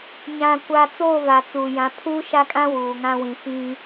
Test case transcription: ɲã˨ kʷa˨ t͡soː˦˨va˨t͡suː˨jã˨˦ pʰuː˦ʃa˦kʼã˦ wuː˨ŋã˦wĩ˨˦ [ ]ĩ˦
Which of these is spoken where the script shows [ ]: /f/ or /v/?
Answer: f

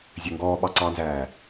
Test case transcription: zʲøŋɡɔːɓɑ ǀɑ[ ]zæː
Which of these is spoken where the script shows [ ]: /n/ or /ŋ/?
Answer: n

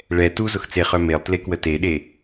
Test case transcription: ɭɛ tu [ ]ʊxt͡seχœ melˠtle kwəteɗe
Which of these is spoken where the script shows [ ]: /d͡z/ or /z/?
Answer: z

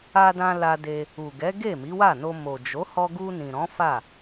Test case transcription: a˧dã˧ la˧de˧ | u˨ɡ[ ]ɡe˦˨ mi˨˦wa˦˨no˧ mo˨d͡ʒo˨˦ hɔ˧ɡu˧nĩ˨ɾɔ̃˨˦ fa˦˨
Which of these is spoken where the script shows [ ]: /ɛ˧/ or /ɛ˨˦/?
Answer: ɛ˨˦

